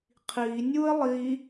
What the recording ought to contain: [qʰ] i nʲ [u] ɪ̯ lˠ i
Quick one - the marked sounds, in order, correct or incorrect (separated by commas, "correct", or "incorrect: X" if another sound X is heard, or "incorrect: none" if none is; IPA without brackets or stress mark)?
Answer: correct, correct